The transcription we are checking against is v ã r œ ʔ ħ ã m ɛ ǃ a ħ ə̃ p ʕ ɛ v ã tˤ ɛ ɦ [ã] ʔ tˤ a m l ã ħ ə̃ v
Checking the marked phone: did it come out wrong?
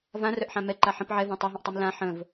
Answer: yes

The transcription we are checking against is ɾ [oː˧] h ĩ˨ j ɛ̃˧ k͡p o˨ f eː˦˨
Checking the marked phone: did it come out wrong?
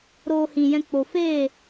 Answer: no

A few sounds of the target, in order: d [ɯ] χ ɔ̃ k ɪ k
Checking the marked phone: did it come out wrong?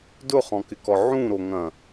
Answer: yes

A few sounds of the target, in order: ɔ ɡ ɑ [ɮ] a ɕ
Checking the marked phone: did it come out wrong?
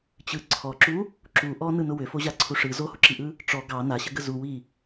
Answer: yes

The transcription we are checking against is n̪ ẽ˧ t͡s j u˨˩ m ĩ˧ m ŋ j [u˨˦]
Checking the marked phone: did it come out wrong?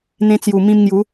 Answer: no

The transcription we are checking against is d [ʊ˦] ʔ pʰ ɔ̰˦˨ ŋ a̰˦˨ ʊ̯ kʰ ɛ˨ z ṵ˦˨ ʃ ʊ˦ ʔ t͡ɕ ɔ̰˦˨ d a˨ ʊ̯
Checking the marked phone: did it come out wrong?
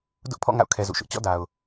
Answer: no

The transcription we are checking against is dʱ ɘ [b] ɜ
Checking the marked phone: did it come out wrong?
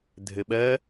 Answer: yes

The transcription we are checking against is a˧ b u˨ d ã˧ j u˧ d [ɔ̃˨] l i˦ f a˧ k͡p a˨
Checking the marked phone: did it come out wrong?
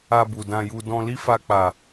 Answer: yes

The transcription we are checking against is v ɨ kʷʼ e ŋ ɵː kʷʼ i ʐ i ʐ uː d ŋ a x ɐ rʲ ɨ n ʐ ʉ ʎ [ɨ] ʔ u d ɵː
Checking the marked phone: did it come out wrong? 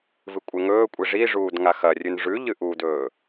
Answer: no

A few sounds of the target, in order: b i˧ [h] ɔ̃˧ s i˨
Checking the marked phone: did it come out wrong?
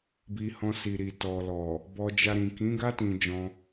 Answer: no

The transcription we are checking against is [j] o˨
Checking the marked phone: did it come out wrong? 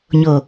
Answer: yes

